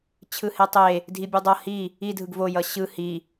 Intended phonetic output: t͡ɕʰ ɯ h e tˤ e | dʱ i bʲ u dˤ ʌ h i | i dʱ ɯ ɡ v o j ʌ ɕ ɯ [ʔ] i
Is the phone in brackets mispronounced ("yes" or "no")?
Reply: yes